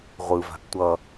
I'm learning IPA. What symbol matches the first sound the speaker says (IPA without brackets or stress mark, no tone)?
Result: ʁʷ